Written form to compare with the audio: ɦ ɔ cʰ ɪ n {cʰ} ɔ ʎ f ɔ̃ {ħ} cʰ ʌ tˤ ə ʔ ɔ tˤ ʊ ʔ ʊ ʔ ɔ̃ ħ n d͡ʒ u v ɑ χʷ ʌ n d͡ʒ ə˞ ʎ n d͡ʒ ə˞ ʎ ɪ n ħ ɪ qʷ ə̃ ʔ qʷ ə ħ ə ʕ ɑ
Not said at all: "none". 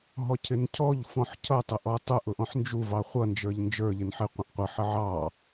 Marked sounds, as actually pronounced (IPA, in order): cʰ, ħ

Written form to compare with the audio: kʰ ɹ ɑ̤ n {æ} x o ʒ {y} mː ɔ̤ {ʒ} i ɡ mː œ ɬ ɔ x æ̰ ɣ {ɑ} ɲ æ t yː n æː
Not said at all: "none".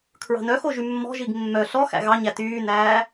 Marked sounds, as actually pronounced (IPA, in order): œ, y, ʒ, ɑ

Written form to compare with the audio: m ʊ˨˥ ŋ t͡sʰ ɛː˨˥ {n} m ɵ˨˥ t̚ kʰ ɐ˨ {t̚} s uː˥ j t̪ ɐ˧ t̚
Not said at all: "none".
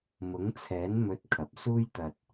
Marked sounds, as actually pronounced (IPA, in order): n, p̚

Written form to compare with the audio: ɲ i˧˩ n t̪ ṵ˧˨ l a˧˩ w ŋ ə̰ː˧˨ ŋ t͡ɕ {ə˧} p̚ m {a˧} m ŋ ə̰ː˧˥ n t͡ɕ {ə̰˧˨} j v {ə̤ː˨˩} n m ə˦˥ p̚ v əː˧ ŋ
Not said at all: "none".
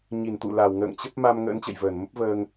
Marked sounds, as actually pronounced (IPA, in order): ə˦˥, a˧, ə̰˧˨, əː˧˩

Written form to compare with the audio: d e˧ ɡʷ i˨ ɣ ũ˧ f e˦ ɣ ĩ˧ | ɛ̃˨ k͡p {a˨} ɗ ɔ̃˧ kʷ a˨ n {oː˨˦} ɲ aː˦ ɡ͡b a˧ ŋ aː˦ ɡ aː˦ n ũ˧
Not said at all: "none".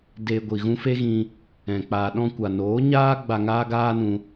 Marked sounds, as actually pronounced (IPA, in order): a˨, oː˨˦

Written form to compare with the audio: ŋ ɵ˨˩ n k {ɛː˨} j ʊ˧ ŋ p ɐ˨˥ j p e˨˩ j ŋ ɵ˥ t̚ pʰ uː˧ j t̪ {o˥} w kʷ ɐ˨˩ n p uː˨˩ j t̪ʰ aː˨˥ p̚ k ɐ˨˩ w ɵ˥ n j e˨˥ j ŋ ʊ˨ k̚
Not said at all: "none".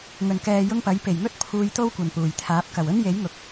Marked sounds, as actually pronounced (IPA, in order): ɛː˨, o˥

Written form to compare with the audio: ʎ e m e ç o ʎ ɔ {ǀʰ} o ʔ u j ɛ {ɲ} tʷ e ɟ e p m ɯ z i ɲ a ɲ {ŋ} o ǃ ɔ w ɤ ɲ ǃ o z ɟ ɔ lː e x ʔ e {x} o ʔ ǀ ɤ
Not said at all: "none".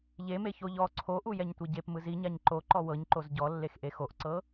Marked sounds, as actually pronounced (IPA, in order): ǀʰ, ɲ, ǃ, x

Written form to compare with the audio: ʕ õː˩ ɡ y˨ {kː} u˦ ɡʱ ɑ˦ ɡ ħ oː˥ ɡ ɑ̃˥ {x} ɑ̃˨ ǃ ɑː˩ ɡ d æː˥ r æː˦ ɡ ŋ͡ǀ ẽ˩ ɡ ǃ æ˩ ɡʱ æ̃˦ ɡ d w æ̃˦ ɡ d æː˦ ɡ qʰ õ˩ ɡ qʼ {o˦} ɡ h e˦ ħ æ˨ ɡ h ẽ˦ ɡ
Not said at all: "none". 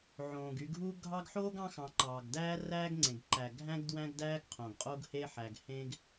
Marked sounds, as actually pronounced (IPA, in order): ɡʱ, x, o˦

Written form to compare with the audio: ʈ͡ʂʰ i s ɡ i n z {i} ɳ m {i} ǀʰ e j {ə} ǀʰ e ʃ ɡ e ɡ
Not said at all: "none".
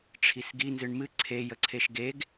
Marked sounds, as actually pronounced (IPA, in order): ɨ, ɨ, ə

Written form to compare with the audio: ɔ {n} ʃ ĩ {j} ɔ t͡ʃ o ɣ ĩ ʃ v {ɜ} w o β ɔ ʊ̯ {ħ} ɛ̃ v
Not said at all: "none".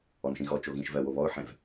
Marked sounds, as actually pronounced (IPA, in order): n, ɣ, ɜ, ħ

